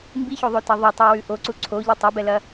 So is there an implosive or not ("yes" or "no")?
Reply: no